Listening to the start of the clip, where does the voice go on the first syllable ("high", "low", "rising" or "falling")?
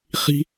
high